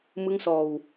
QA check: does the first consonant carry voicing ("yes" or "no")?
yes